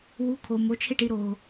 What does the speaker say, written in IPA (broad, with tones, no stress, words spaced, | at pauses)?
wu˩˥kʰo˩ mo˩˥t͡ʃʰe˥˩ʈi˧ ɾo˩